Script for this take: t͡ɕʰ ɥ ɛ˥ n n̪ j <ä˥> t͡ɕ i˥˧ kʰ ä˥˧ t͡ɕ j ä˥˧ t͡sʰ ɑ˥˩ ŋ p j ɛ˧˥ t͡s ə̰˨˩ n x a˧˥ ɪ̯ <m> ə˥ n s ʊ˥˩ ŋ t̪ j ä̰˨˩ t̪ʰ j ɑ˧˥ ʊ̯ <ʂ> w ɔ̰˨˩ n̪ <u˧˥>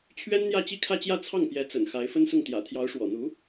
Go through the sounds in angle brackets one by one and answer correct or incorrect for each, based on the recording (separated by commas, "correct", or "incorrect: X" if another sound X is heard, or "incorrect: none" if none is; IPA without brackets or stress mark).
incorrect: ä˥˧, incorrect: f, correct, correct